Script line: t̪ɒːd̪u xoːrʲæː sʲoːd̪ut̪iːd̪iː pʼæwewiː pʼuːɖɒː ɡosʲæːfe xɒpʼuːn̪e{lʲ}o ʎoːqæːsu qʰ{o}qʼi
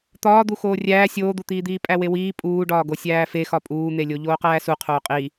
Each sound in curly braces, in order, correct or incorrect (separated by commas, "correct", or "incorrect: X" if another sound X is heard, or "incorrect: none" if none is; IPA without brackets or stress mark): correct, incorrect: oː